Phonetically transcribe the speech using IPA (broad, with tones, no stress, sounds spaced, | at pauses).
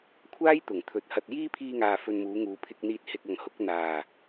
kʷʰ aː˥ j t̪ ʊ˨˩ ŋ t̪ʰ ɵ˨˥ t̚ h ɐ˧ t̚ j iː˥ pʰ iː˧ ŋ aː˨ f ɵ˨ n m uː˨˧ ŋ uː˨ pʰ ɪ˧ k̚ n̪ iː˧ t̚ h ɪ˧ k̚ ɐ˨ ŋ h ʊ˨˥ k̚ n̪ aː˨˩